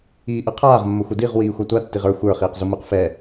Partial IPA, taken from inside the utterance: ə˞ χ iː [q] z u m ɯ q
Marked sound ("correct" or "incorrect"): correct